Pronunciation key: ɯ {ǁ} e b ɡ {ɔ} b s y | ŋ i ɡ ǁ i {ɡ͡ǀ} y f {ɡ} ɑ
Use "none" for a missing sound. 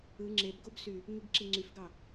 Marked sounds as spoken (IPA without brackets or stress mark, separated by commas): ŋ͡ǁ, o, ŋ͡ǀ, ɡ